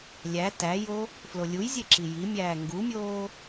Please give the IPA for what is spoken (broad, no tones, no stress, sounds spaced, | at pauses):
lʲ æ t æ j o | f l o lʲ u j zʲ e ǁ i j i mʲ æː ŋ ɡ u mʲ oː